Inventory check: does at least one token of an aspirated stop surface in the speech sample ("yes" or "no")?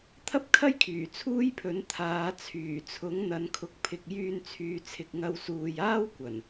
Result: yes